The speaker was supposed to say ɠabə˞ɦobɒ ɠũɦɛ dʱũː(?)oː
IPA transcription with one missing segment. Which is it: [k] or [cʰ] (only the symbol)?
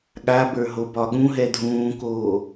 k